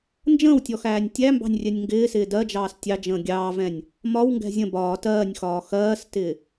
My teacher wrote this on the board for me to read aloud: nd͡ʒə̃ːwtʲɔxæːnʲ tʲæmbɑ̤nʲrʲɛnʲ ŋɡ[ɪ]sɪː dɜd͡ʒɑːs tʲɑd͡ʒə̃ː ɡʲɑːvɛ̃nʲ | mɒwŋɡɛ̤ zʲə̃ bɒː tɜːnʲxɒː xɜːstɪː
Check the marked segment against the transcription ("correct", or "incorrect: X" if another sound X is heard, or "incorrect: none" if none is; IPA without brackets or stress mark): incorrect: ɪː